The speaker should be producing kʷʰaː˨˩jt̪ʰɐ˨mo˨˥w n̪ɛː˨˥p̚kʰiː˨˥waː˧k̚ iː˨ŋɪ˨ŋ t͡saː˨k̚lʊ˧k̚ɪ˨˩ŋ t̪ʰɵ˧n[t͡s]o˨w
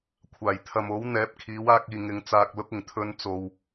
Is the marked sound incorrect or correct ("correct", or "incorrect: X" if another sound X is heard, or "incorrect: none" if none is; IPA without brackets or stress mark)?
correct